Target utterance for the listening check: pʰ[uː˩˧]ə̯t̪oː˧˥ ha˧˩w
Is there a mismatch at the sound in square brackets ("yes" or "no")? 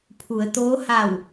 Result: yes